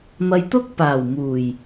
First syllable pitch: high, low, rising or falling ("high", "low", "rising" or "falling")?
low